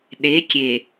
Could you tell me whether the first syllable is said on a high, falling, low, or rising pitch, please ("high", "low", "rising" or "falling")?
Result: rising